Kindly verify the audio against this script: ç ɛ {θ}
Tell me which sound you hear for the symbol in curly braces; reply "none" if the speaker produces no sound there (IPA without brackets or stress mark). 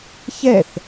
θ